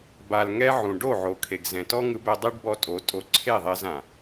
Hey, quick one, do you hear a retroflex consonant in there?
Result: yes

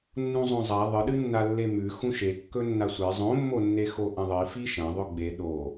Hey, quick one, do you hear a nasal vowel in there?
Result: yes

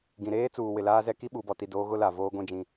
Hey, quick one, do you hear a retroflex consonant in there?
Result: no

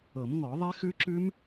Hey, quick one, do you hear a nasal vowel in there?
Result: no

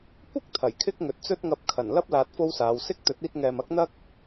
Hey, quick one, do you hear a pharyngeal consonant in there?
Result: no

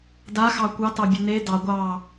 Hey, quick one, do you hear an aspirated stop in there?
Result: no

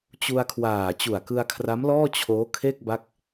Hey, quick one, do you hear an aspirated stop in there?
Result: yes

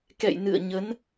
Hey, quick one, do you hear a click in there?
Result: no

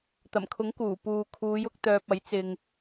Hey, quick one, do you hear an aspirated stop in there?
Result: yes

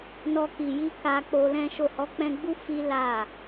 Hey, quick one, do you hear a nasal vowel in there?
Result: yes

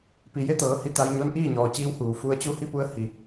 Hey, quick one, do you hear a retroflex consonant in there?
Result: no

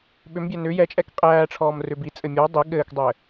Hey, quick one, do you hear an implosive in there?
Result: yes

